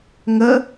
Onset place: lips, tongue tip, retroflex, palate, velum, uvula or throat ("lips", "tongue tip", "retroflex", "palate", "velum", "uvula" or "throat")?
velum